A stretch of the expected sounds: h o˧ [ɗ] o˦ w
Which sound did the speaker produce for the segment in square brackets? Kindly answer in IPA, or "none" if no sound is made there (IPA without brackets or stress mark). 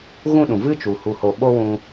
ɓ